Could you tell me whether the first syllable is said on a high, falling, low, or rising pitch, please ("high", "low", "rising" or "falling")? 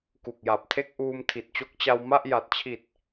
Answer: low